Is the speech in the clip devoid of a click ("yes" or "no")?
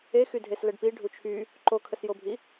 no